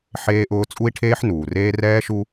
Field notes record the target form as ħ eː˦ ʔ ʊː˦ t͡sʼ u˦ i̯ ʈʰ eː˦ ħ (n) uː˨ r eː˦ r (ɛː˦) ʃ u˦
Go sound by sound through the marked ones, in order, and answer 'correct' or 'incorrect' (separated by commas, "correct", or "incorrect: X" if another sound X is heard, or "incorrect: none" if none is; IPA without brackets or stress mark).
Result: correct, correct